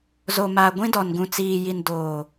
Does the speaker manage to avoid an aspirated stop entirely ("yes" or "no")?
yes